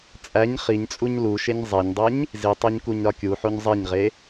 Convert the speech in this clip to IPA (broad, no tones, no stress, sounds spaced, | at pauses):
t͡sʼ æ ɲ χ i ɲ t͡sʼ u ɲ l u ʃ e ɲ zˤ e ɲ dˤ e ɲ | z i tˤ o ɲ k u ɲ ɾ ɒ kʲ u ħ o ɲ zˤ e ɲ ʁ e